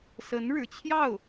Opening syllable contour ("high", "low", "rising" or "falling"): rising